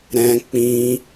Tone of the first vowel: high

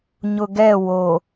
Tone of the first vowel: low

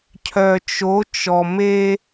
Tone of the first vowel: low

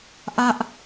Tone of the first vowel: high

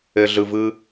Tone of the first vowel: low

